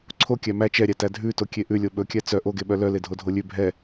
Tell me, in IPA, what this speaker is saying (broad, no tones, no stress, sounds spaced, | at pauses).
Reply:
ǀʰ o kʲ æ m æ t͡ʃ ɛ ɾʲ æ t æ dʱ ʉ t o kʲ e ʔ ʉ lʲ o ɓ ɵ kʲ æ t͡s œ ʔ o ɡ e ɓ œ l œ l e dʱ o dʱ o lʲ ʉ bʱ ɛ